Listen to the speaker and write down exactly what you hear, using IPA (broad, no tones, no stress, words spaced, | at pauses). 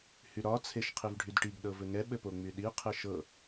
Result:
hyɾɒ t͡sʰeʃqʰivɖʱydʈiɡ ɗɤvɘŋɛ ɓɘpoŋ͡myɗi qʰɘʃɤ